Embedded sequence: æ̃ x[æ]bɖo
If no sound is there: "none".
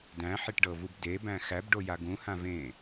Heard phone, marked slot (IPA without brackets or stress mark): æ